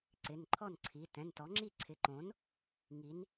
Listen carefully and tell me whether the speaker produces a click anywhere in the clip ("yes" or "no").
yes